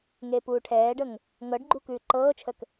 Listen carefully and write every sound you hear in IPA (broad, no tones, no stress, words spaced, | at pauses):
ŋeːpuːʈʰɛːɖəŋ | ŋɤɖɡ͡ǃu kʉːǃɤːt͡ʃʰək